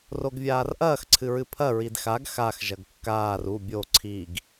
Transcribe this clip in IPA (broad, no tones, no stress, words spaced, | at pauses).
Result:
roɡvʲaːrʔɐːx ǀʰɨɹɨpʰɐ ɹidxaɡ xax ʒɐɡkːaːr u bʲo ǀʰiɡ